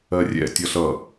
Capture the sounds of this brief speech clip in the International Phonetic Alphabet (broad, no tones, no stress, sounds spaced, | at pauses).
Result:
ɜ rʲ ɛ̰ tʲ ʌ ɬ ʌ